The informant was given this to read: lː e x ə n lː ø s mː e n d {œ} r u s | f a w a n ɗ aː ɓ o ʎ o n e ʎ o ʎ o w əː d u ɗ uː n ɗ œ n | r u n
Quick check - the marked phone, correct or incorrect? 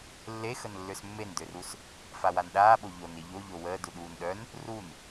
incorrect